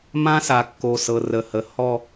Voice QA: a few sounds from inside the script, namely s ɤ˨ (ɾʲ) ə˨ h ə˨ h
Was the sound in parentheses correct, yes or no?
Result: no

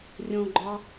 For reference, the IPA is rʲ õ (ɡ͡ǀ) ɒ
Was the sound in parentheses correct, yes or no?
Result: no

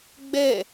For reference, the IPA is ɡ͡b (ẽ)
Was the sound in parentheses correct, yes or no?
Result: no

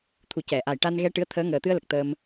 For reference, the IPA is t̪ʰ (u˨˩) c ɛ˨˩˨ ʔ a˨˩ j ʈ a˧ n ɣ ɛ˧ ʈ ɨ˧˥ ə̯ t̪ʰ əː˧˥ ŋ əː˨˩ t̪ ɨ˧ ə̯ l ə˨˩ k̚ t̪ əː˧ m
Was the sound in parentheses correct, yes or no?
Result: yes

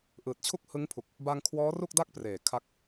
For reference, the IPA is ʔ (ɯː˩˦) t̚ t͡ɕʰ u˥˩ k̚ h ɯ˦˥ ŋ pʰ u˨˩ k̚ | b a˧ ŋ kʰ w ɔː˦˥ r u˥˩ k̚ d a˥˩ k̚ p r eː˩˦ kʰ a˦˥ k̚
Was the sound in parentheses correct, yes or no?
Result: no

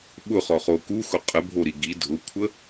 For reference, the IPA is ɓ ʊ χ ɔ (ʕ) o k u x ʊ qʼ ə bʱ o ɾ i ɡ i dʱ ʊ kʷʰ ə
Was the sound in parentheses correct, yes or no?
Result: no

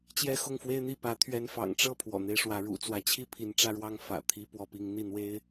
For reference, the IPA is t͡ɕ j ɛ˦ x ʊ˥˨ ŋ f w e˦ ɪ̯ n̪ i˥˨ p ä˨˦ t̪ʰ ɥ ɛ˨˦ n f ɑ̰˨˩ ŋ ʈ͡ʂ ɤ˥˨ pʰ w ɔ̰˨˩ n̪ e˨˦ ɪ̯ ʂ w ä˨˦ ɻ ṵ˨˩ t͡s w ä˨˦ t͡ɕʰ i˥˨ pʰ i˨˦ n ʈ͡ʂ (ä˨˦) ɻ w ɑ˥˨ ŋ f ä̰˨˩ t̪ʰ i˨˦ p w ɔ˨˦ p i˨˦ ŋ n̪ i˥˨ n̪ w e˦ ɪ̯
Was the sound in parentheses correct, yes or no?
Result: no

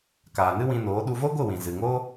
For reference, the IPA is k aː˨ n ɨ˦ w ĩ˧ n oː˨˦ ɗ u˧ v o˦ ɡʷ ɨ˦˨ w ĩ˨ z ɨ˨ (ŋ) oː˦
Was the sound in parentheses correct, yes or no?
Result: yes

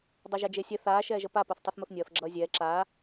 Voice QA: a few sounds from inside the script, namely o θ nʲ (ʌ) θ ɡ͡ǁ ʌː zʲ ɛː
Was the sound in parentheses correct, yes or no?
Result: no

